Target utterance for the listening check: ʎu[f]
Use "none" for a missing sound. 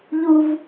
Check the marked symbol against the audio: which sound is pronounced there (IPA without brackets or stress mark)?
v